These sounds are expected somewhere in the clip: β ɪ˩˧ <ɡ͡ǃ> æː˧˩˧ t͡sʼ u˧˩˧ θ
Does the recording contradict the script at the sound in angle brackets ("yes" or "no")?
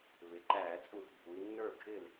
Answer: yes